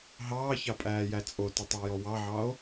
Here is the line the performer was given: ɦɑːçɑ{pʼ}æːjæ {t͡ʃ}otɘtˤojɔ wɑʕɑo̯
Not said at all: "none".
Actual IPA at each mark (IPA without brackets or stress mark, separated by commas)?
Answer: pʼ, t͡sʼ